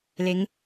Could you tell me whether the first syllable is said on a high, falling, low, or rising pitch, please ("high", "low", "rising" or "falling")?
rising